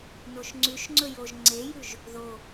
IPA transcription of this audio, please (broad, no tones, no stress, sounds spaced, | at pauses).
n o ʃ ŋ͡ǀ ʉ ʃ ŋ͡ǀ ɵ j o ʒ ŋ͡ǀ e j ʉ ʒ | ð o